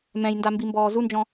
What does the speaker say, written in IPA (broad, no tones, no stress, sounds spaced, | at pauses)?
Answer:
m ɛ̃ j n d a m b i m b ɔː z u n d͡ʒ ɔ̃